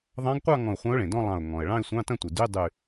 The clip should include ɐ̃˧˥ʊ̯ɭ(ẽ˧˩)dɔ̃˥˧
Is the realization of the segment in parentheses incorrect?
yes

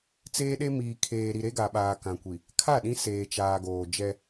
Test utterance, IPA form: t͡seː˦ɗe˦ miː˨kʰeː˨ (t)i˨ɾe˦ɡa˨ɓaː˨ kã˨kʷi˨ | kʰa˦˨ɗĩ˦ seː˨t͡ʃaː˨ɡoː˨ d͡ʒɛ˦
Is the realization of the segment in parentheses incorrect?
yes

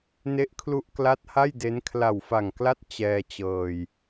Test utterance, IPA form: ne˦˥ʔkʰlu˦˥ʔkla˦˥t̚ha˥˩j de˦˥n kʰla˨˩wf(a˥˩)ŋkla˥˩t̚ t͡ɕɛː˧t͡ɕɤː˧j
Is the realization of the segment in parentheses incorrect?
yes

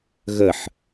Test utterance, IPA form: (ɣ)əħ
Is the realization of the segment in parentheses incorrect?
no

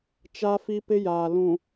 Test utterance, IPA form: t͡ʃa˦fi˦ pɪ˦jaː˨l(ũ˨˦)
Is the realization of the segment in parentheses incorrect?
yes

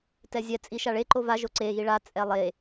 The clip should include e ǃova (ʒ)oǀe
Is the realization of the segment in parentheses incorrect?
no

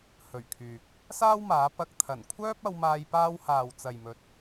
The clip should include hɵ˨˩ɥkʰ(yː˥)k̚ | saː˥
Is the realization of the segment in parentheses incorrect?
yes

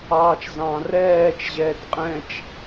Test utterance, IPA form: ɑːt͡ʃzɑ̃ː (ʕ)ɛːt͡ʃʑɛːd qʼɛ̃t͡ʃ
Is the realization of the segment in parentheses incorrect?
yes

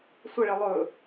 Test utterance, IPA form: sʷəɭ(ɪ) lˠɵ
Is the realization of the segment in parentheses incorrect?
no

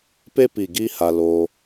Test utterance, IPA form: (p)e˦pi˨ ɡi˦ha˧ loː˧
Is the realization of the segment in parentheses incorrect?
no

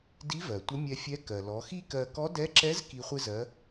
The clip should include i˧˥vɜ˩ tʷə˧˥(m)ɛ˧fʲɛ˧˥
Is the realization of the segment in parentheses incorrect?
yes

